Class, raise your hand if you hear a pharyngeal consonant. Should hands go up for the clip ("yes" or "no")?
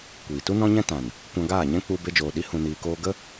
no